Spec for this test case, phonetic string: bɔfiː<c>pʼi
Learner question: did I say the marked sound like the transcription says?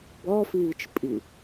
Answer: no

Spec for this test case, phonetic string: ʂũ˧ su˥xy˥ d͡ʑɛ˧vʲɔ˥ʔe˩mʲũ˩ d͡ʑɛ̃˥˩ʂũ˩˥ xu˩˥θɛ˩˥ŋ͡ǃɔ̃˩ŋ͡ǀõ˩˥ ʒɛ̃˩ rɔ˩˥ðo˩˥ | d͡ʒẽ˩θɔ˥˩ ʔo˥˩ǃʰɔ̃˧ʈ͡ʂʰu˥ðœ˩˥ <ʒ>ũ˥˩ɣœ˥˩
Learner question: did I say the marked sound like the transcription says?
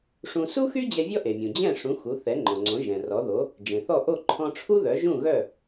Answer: yes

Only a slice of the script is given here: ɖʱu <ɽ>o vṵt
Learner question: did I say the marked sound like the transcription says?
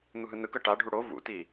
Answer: yes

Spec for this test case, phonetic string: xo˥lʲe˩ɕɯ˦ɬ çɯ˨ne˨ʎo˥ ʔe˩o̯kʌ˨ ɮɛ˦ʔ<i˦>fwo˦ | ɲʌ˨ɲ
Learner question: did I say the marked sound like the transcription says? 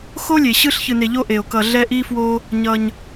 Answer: yes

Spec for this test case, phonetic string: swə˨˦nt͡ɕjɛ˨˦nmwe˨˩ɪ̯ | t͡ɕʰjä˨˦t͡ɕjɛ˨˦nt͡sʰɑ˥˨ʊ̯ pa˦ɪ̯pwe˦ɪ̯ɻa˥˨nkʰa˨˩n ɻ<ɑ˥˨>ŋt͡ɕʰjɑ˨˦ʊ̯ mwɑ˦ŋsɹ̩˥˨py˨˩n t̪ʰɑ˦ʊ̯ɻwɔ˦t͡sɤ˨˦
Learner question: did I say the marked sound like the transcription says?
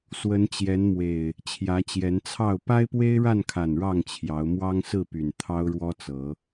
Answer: yes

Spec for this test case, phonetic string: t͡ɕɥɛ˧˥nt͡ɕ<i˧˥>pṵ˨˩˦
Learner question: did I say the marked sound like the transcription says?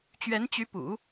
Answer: no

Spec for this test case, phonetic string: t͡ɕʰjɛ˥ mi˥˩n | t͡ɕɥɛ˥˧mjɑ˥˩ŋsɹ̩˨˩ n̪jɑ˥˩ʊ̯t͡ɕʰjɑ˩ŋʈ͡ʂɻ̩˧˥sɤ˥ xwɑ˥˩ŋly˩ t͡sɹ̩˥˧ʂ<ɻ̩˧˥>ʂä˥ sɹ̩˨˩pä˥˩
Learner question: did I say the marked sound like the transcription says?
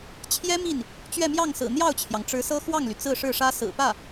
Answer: no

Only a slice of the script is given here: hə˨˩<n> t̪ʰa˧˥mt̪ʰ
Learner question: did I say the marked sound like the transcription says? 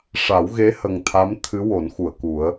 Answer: no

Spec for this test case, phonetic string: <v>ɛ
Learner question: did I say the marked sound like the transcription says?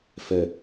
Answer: no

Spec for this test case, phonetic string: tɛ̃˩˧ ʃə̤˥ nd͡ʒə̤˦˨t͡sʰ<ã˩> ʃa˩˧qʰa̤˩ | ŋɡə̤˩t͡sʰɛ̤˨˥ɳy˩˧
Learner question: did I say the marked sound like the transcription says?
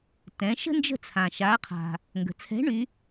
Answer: yes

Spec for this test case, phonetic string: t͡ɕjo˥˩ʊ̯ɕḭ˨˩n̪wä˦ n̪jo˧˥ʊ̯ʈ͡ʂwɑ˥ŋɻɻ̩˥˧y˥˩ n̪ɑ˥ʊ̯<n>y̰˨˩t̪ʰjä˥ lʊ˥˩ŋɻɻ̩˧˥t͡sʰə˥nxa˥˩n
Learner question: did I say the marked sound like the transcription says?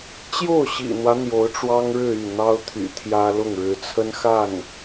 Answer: no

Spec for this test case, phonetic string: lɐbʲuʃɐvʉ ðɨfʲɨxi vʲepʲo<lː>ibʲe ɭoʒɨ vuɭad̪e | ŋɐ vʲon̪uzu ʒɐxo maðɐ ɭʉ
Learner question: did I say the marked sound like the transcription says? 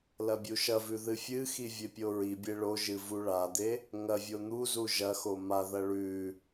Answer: no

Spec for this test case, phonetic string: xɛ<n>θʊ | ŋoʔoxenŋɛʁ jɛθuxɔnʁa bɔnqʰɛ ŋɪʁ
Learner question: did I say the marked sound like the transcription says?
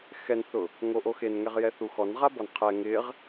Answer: yes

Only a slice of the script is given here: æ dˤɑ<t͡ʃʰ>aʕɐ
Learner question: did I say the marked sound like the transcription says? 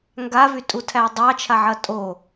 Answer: yes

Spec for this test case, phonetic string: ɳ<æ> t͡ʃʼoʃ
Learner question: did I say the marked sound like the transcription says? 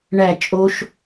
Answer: yes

